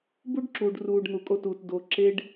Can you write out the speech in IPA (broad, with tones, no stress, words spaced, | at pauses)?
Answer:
bu˦ɖǁuː˨ɖruː˨ɖ n̪u˨kʼo˦˨tuː˨t do˨ ǁe˦ɖ